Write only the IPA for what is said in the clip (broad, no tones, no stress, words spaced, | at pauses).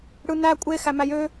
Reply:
ɽɯnæ kʷʼe xæmæjø